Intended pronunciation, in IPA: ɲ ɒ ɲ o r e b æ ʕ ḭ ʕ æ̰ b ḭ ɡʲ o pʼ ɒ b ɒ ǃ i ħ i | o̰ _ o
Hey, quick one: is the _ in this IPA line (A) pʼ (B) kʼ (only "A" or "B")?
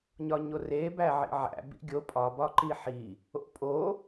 A